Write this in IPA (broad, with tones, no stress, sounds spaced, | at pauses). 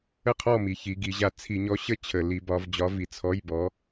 ə˥˩ qʰ ɔ˥˩ m i˩˧ ç i˩˧ ɡ i˩˧ ʑ a˨˥ t͡sʰ i˧˩˧ ɲ ɔ˨˥ ɕ ə˥˩ t͡ɕʰ ə˧˩˧ l i˨˥ b ɒ˨˥ v d͡ʑ ɒ˨˥ v i˩˧ t͡sʰ ɔ˧˥˧ j b ɔ˨˥